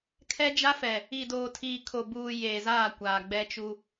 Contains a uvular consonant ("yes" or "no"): no